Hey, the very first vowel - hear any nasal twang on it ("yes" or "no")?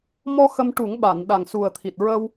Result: no